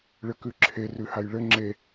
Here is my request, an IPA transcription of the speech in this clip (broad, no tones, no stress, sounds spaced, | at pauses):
ɭ ɘ k ʉ ǁʰ e r ʉ h a j ɭ ɘ ŋ͡ǁ e